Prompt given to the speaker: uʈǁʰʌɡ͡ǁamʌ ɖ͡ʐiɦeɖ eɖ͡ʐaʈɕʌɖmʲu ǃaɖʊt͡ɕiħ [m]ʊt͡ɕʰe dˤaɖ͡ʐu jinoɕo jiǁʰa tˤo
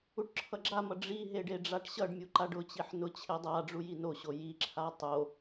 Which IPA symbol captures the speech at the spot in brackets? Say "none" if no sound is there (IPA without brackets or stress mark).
n